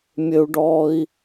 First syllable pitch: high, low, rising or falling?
high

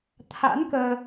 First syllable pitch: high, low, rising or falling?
rising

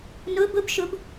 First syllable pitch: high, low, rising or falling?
rising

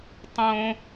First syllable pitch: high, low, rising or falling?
high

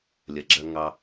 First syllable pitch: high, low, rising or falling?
low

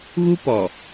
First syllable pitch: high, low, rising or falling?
high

